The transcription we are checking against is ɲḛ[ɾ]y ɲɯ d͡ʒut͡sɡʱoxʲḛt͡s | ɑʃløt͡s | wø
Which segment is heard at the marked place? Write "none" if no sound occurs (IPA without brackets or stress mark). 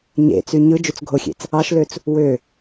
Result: t͡s